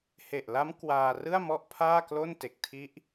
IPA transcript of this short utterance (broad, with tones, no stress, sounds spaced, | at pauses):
h e˨˩ ʔ l a˦˥ m k w aː˧ r ɯ˥˩ a̯ m ɔ˥˩ ʔ pʰ aː˥˩ k l o˥˩ n t e˨˩ k̚ tʰ i˦˥ ʔ